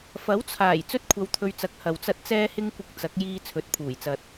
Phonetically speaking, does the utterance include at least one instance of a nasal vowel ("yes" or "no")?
no